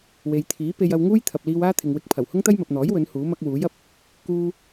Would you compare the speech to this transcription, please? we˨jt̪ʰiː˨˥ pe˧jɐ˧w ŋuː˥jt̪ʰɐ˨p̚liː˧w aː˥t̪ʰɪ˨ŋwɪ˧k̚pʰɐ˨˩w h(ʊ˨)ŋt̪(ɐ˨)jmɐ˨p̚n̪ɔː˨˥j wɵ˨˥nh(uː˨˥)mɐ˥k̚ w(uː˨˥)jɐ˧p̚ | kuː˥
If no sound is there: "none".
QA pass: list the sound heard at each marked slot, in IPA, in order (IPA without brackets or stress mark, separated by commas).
ʊ˥, ɐ˥, uː˨˥, uː˨˥